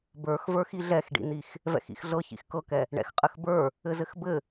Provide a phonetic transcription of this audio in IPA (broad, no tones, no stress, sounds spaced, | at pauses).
b ə˞ x v ə˞ x i ɮ ɛ x ɖ ḭ n̪ i x | v ɛ̰ x ḭ x ɮ ɤ ç ḭ x k ɤ k ɛ | ɳ ɛ̰ x qʼ ɘ x b ə˞ | ɘ z ɘ x b ɘ